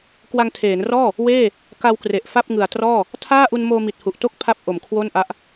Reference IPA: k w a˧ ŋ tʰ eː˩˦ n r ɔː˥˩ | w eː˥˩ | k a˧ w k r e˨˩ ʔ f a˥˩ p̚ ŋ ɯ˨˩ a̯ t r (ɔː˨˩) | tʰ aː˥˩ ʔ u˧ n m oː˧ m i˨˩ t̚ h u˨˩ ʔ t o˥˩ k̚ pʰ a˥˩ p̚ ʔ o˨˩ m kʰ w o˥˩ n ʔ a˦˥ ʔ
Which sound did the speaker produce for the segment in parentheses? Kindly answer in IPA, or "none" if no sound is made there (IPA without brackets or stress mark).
ɔː˥˩